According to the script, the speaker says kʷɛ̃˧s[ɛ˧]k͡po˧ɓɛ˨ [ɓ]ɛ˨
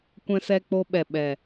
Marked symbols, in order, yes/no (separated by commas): yes, yes